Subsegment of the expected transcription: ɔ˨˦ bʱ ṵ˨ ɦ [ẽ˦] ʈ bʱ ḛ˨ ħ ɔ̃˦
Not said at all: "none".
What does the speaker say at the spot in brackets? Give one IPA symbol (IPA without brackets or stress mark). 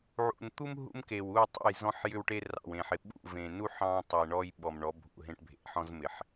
ẽ˦